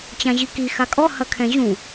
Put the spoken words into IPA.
t͡ɕ ã ʑ i k i x a kʼ ɔ h ɐ kʰ ɛ̃ ʑ ũ

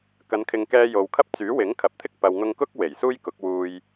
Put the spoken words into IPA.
k ɐ˨˧ n kʰ ɪ˨ ŋ k ɛː˧ j o˨ w kʰ ɐ˥ p̚ t͡s yː˨˥ w ɪ˨˥ ŋ kʰ ɐ˨ p̚ t̪ʰ ɪ˥ k̚ p ɐ˨ w ŋ ʊ˧ ŋ k ʊ˥ k̚ w e˨˩ j s uː˥ j k ʊ˨˥ k̚ w uː˧ j

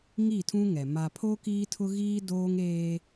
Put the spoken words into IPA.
ŋ i˦˨ tʰ ũ˦ ŋ ɛ˨ m a˨ pʰ o˦ k iː˦ tʰ ʊ˦ ɣ iː˦ d oː˦ ŋ eː˦

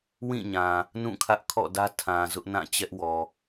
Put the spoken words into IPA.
w ĩ˦˨ ɲ ã˨ | n ũ˦˨ kʰ ä˦ ʔ kʰ ɔ̰˦˨ d ä˦ tʰ ã˨ z ʊ˦ ʔ n ã˦˨ t͡ɕ ɛ˦ ʔ w ɔ˨

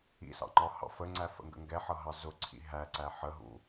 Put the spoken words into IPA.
ḭ s ɑ̰ ŋ͡ǃ ɒ h ɑ̰ f ə ŋ͡ǀ æ f ə̰ ŋ ɡ ə̰ ŋ ɡ ɛ ħ ʌ ɦ ɑ z ʊ ǀʰ ḭ ɦ æ ǀ æ ħ ə ɦ ṵ

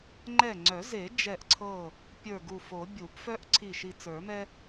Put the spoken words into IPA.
ŋ͡ǃ ɛ˧˩ ŋ͡ǀ œ˨˩˦ z e˨˩˦ d͡ʒ ɛ˧˩ ʔ ǀʰ ɤ˧˩ | pʲ ə˞˧˩ ɡ u˧˩ f o˨˩˦ bʲ u˨˩˦ p f œ˦ ʔ ǀʰ i˧˩ ʃ i˧˩ t͡s ə˞˨˩˦ m ɛ˦

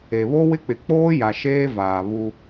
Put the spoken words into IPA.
e˨ β o˦ w ɪ˦ k͡p ɪ˨ k͡p oː˦ j a˨ ʃ eː˦ v aː˨ β u˦

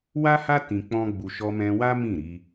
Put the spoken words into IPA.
w a˦ h a˦ t ĩ˧ k͡p ɔ̃˦ ɡ͡b u˧ ʃ ɔ˧ m ɛ̃˧ w a˦ m ĩ˦˨ ɾ i˧

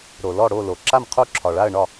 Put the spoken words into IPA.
ɾ o˨ l ɔ˥˨ ɽ o˥˨ l o˨ ǁ a˥˨ m qʰ o˥˨ ǁʰ ɒ˨ ɭ a˥˨ ə̯ ɳ ɒ˥˨

